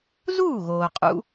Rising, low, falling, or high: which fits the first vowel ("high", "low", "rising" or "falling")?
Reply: falling